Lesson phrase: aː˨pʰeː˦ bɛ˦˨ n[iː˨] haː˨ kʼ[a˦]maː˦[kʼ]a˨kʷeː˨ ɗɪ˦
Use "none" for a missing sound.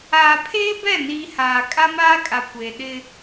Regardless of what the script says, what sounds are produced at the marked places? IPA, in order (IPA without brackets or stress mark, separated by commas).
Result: iː˨, a˦, kʼ